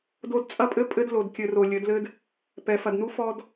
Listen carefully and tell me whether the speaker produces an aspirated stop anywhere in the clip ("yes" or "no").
no